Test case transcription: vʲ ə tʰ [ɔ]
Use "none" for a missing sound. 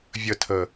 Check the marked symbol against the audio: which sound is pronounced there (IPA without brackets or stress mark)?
ə